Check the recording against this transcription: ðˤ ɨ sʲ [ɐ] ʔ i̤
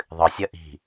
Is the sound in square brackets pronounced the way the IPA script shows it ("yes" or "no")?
yes